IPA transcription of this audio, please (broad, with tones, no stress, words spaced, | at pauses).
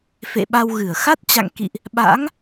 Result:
fḛ˧˨ɓa˧wɣɨ˧˩ə̯ xa˦˥t̚t͡ɕa̰˧˨ŋkḭ˧˨ʔ | ɓa̰˧˥ŋ